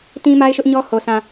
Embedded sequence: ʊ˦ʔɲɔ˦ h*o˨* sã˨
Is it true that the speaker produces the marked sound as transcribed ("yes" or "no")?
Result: yes